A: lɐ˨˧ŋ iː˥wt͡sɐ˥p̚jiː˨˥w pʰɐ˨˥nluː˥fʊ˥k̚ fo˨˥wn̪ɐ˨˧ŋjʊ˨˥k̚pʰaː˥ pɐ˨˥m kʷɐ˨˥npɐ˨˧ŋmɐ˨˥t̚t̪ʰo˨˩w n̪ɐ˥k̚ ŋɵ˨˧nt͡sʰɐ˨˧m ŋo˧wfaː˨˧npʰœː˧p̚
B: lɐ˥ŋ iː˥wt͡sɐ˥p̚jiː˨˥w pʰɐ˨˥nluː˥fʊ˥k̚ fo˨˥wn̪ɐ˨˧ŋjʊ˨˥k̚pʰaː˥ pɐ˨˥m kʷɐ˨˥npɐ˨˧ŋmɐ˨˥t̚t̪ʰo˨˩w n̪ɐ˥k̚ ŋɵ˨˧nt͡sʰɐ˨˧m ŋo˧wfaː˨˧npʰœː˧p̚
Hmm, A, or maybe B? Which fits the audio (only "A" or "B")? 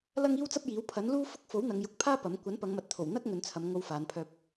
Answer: B